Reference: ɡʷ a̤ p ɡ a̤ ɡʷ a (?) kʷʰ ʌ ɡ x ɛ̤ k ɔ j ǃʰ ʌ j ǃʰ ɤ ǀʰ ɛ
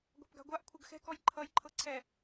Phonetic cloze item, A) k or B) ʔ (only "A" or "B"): B